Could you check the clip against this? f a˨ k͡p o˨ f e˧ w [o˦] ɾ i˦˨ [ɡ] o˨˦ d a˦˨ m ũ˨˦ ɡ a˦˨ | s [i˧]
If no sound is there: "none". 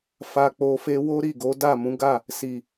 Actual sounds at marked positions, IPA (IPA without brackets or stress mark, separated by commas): o˦, ɡ, i˨